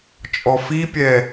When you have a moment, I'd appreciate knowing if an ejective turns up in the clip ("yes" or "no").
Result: yes